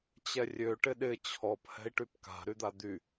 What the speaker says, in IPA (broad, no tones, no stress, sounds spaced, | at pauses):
t͡ɕ ɛ rʲ ø ʈ ɪ ɗ ɪ t͡ɕʰ ɔ p h ɛ̤ i̯ ʈ y p k a̤ ɾ y d̪ a d̪ y